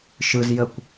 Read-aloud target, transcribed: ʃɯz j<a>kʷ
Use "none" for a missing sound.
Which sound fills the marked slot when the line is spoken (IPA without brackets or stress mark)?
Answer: ə